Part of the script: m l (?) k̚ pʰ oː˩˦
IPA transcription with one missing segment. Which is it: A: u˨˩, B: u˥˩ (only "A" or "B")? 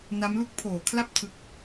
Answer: B